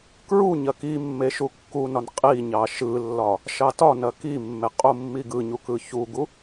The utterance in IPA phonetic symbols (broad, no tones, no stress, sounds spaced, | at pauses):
k ɹ u ɲ ɐ k i mː e ʃ u kː u n ɒ n qʼ i ɲ ɑ ʃ ɯ lː ɒ | ʃ ɑ t ɒ n ɐ k i mː e qʼ u mː i ɡ ɯ ɲ u k ɯ ç u ɡ u